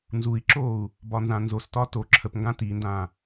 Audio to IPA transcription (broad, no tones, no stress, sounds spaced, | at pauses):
n z u i̯ ǁ o u̯ | b ɒ n z ã n z o s t ɒ t o ǁʰ ə p ŋ ɡ ã t i n d ã